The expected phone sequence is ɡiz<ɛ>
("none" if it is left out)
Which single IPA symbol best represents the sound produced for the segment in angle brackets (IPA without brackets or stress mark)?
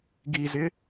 ɪ